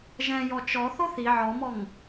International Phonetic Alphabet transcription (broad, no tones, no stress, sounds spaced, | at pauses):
ʒ ɛ̃ j ɔ t͡ʃ ɔ θ o θ i ʕ ɔ m ɔ ŋ